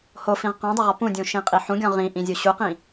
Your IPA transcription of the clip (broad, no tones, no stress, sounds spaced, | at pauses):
h o f ĩ ʁ q ɔ̃ dˤ o ʁ ɔ p ũ dʲ ũ ʃ ĩ qʼ i ħ ũ ɡʲ ɔ̃ ʁ ĩ ʔ ĩ zʲ u ɕ u q ĩ